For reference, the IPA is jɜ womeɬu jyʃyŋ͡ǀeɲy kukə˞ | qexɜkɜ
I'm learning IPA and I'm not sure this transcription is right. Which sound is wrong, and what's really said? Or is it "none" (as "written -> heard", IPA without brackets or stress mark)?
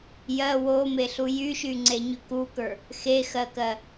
q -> x